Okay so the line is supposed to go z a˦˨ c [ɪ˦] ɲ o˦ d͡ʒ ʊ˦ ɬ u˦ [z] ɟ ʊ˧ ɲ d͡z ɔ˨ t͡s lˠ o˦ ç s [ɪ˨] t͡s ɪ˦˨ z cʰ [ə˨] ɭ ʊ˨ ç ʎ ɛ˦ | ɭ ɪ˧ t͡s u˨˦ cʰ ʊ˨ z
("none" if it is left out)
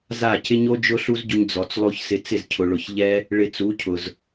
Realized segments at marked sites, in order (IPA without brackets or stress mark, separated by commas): ɪ˦, z, ɪ˧, ʊ˨